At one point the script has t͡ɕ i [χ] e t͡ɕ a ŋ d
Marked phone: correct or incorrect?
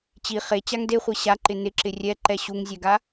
correct